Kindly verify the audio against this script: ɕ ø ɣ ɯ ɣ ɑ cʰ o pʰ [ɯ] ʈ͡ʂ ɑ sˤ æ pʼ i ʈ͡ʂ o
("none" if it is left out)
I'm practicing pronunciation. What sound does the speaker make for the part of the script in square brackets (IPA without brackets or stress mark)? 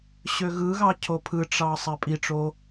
ɯ